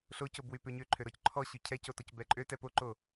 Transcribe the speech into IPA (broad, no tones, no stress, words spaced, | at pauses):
ɬocobwy pøɲøǃʰøɾɔc ǃʰɔɕʉ cʰɛco tɔcbɛǃʼø tɛpoǃo